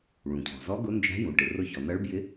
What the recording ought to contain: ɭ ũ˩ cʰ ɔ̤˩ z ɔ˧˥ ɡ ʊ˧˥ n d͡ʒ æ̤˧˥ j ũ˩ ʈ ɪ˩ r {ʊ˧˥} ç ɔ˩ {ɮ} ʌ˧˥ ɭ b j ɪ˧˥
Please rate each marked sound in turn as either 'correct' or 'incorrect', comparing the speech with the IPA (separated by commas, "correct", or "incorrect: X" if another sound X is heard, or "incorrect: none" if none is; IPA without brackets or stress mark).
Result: correct, incorrect: n